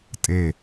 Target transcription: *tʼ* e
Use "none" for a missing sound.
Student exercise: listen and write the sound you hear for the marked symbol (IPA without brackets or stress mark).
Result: tʼ